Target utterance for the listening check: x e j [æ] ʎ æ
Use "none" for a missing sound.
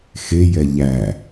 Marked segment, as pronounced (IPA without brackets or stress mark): ɛ